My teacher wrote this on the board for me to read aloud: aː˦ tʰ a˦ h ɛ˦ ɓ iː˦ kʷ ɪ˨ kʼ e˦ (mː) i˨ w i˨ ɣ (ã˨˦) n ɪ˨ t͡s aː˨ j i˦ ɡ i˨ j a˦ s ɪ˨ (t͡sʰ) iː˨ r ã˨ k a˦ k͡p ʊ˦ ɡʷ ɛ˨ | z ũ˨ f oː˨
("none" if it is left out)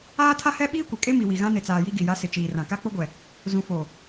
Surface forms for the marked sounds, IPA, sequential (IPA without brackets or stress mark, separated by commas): m, ã˦, t͡ʃ